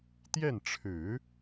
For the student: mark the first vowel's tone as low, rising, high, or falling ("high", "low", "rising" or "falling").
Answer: falling